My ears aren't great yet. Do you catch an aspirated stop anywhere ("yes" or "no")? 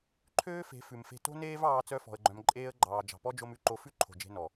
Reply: yes